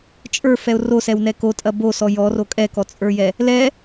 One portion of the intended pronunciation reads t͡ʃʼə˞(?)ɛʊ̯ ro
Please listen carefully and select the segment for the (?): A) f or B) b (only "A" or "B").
A